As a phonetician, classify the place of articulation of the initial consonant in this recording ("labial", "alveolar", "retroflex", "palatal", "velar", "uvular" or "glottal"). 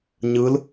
palatal